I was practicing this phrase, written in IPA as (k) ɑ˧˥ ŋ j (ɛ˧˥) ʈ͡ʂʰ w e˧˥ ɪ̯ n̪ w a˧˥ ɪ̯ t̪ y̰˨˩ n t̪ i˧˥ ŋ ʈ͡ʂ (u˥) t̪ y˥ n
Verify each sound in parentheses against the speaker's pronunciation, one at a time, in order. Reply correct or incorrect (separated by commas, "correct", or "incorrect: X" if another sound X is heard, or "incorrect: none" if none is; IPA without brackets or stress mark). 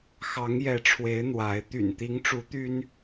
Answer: incorrect: x, correct, incorrect: u˧˥